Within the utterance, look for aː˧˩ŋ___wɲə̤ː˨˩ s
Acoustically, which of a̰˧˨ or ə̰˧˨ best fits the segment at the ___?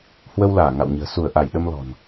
a̰˧˨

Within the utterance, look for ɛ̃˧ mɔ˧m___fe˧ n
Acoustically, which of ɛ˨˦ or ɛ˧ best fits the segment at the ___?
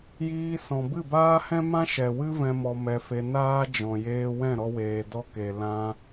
ɛ˧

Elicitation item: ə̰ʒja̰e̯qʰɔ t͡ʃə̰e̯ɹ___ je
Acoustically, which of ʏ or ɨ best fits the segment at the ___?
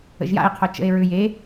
ʏ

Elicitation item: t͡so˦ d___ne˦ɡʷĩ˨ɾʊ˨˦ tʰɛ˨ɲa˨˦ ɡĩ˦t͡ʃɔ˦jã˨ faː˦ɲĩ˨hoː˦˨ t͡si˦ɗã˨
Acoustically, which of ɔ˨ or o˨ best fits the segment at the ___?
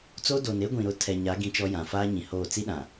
o˨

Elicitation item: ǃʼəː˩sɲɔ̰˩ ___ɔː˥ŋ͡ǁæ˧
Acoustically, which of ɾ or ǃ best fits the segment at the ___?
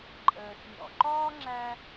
ǃ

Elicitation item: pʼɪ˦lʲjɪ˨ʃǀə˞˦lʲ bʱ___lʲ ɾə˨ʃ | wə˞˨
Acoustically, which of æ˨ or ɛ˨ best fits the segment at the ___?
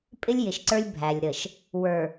æ˨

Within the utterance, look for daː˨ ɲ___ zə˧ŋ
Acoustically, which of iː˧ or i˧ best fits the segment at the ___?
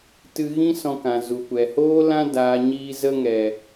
iː˧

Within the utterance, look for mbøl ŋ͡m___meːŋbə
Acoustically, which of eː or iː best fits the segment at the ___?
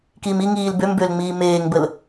iː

